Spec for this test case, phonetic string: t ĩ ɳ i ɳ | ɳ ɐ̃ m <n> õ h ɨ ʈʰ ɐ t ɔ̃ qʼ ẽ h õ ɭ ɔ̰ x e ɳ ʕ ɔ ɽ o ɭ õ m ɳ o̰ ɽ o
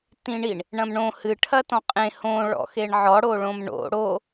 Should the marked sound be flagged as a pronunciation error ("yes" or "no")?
yes